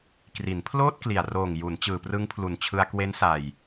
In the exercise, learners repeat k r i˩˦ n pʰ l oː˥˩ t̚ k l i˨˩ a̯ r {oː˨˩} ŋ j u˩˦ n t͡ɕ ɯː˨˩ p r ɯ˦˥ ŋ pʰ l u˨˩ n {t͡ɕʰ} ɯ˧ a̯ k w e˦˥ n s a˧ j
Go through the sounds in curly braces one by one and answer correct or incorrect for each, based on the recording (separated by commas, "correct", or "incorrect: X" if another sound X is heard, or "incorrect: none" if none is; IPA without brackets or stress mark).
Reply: correct, correct